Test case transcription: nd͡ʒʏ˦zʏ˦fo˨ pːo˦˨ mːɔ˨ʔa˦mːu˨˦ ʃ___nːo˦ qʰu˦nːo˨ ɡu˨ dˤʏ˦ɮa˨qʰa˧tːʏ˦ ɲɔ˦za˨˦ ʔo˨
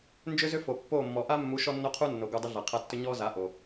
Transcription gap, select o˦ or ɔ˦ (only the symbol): ɔ˦